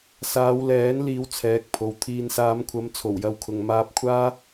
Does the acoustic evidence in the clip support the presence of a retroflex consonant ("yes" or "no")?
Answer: no